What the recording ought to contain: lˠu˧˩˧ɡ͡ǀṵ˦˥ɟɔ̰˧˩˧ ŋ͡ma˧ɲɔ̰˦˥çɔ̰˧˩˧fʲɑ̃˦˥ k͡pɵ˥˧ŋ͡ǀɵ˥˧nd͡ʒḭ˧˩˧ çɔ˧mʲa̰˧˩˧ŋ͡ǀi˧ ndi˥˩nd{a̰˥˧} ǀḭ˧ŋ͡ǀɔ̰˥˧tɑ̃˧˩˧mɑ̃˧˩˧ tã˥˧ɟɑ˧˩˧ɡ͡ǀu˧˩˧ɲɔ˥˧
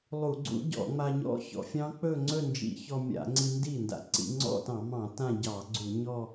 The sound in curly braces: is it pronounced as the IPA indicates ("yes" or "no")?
no